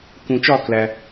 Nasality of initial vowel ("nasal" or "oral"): nasal